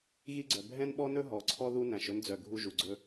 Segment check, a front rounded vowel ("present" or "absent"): present